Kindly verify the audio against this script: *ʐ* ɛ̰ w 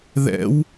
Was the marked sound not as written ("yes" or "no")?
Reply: yes